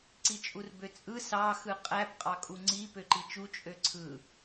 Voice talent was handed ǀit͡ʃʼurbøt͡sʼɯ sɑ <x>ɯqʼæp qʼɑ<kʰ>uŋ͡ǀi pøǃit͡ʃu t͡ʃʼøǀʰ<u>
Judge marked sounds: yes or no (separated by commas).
yes, no, no